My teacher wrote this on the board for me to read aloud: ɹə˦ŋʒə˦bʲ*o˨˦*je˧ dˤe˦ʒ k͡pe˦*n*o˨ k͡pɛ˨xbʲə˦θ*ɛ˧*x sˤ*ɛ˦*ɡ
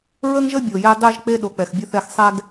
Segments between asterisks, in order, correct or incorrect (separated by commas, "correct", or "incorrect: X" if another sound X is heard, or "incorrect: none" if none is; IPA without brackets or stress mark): incorrect: o˨, incorrect: ɗ, incorrect: ɛ˦˨, correct